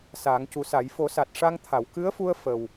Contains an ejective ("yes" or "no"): no